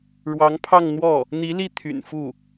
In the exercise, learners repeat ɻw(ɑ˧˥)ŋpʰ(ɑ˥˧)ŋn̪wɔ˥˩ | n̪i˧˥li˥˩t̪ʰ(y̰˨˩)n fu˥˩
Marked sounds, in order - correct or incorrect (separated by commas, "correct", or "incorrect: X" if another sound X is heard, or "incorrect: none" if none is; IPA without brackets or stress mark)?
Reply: correct, correct, correct